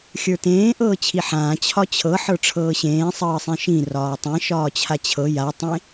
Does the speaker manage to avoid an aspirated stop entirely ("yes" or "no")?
no